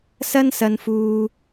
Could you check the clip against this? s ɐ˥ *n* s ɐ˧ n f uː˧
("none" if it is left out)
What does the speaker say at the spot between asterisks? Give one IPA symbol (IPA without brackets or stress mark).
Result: n